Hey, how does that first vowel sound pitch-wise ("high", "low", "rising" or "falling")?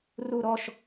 falling